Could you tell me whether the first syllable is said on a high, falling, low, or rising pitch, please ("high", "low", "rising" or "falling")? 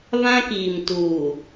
high